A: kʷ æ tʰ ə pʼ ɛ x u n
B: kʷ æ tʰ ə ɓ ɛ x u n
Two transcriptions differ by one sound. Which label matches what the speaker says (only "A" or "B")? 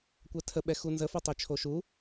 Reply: B